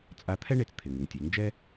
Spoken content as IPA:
t͡sʼ a˧˥ t̪ʰ ɛ˥ ɳ e˧ t͡s t̪ʰ ɪ˩ ŋ ɪ˩ ŋ tʲ e˩˧ ŋ d͡ʒ ɛ˥

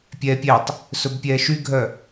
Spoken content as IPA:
pʲ ɛː pʲ ɛ tˤ | s ɵ b pʲ ɛː ʃ y ɡʱ œ

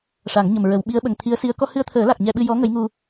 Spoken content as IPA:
ʂ a˨˩˦ ŋ ɲ ə˨˩ m ɹ ə˨˩˦ w ɓ i˧˥ ə̯ ɓ ə˨˩ ŋ t̪ʰ i˧˥ ə̯ s i˧˥ ə̯ k ɔ˧ h ɨ˧ ə̯ t̪ʰ əː˨˩˦ l a˨˩ k̚ ɲ ɛ˧ ɓ ɨ˧ j ɔ˧˥ ŋ ə˧˥ j ŋ u˧

